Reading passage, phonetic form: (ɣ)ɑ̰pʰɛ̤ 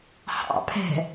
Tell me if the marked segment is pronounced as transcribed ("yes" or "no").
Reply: no